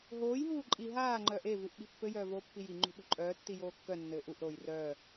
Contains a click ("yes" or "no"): yes